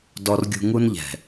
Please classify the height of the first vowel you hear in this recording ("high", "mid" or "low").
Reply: mid